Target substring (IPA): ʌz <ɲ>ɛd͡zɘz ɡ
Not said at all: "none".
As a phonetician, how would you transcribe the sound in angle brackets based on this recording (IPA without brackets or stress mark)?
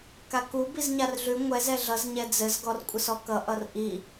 ɲ